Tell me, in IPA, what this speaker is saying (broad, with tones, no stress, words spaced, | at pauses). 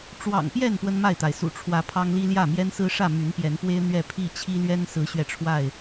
ʈ͡ʂwɑ̰˨˩ŋ pjɛ˥˨n pwə˦nma˥˨ɪ̯t̪a˩ɪ̯ sṵ˨˩ʈ͡ʂʰwä˨˦ pʰɑ˦ŋli˦ljä˥˨ mjɛ˦nsɹ̩˦ʂä˥˨ my˨˦npjɛ˨˦npwe˦ɪ̯ n̪ɥɛ˥˨pʰi˥˨ t͡ɕʰi˦lɥɛ˦n sɹ̩˨˦ɕɥɛ˧ʈ͡ʂʰwa˥˨ɪ̯